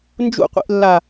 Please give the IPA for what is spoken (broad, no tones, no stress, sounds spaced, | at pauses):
n d͡ʒ ṵ qʷ ḭ ʔ lː a